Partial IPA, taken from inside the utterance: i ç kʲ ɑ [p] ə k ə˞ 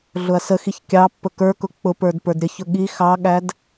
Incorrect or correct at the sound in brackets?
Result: incorrect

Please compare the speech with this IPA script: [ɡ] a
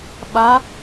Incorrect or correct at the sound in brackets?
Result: incorrect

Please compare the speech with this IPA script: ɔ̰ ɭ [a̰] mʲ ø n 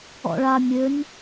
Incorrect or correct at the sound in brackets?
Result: incorrect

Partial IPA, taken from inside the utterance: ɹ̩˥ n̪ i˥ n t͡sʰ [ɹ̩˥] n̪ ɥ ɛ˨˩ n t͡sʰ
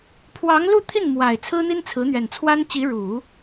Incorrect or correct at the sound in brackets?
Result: incorrect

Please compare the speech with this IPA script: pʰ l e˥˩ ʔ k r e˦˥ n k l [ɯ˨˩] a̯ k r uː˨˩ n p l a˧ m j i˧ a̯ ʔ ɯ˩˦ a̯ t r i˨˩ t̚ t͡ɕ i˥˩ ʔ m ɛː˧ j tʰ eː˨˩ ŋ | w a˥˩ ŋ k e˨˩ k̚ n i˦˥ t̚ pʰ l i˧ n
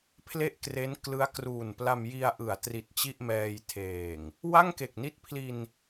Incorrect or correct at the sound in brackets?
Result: incorrect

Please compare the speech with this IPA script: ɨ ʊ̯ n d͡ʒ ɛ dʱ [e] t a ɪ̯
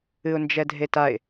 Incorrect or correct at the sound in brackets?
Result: correct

